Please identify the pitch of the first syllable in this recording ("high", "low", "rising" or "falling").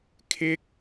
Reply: high